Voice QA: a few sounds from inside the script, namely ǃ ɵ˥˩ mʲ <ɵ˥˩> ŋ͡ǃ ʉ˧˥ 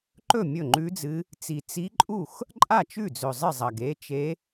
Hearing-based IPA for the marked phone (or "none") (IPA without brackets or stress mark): ɵ˥˩